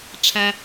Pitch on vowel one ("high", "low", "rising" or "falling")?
high